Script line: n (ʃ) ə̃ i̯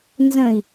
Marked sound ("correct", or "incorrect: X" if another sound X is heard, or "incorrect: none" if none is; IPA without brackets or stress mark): incorrect: z